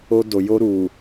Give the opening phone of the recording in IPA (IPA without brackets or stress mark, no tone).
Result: o